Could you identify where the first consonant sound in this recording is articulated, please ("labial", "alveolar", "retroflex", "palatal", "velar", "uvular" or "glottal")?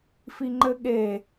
labial